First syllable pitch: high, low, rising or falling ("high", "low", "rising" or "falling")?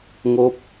rising